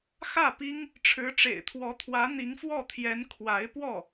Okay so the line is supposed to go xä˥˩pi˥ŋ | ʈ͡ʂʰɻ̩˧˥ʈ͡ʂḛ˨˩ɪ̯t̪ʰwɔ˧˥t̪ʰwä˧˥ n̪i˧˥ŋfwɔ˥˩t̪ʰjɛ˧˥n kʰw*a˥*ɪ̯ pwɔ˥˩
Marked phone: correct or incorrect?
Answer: incorrect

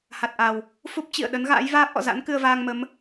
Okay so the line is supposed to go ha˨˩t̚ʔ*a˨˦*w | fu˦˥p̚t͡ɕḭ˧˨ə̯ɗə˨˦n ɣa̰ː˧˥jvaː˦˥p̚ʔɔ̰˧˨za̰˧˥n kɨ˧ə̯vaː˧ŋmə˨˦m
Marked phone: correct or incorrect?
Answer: incorrect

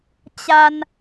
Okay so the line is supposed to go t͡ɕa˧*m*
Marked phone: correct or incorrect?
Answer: incorrect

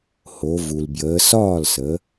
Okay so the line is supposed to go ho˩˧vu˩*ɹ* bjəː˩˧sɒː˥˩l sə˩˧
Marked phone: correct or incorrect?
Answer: incorrect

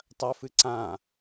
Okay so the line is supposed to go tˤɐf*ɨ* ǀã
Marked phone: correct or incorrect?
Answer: correct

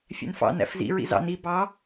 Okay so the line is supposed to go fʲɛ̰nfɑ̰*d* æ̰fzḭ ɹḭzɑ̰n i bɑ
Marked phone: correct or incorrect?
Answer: incorrect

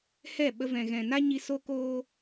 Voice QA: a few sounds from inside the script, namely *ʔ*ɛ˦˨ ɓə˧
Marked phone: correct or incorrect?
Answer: incorrect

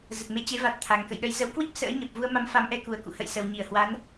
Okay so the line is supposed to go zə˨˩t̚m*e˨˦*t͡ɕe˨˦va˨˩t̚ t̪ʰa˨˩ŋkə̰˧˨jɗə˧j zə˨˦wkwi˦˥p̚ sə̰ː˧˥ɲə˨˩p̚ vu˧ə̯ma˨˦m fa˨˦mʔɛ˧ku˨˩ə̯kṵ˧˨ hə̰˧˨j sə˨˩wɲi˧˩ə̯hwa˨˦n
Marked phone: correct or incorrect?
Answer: correct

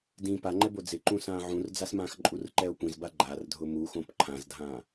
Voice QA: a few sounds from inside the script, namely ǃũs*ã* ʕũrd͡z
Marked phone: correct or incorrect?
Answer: incorrect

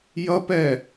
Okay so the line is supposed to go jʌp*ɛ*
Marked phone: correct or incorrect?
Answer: correct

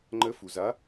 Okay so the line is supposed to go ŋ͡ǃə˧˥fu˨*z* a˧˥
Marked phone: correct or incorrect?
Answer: correct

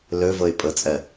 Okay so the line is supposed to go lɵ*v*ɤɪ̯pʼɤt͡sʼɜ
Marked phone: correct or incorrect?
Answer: correct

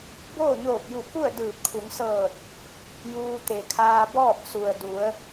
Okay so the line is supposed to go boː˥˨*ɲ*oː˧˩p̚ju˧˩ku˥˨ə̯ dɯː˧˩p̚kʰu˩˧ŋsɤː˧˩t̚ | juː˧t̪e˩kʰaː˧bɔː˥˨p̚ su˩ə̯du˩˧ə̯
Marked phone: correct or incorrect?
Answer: correct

